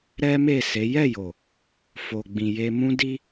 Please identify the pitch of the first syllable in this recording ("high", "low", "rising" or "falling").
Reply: high